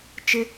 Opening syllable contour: high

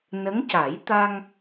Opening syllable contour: rising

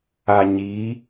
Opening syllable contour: low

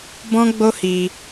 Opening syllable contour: high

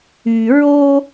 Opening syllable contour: low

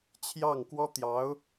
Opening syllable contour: falling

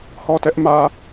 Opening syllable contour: falling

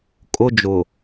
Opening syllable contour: high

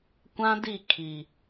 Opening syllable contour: high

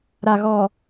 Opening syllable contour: low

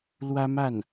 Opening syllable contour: high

